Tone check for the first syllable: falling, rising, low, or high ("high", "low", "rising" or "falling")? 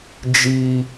high